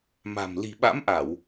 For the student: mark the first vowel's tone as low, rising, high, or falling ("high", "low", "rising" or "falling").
low